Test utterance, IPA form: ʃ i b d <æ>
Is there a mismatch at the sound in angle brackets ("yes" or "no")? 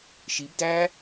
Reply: no